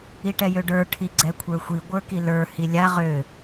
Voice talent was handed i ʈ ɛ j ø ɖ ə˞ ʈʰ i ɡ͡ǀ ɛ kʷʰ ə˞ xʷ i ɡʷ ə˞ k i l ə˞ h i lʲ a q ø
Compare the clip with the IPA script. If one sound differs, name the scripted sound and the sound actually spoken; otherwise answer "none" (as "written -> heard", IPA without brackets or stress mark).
q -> ʁ